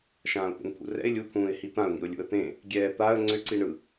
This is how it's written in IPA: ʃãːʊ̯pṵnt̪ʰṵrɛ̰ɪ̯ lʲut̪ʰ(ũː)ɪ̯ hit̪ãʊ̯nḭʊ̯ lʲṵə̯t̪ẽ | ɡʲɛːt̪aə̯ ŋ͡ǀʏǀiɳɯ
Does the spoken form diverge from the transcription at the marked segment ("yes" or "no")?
no